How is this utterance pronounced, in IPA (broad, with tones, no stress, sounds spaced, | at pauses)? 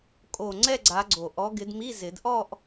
kʼ o˨˩ ŋ͡ǀ ɛ˥˧ ɡ͡ǀ a˨˦ ɡ͡ǀ o˨˩ ʔ ɔ˨˦ ɡ ɪ˨˦ d m i˧˥˧ z ɪ˨˩˦ d ʔ ɔ˥˧ ʔ